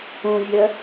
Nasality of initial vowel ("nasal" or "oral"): nasal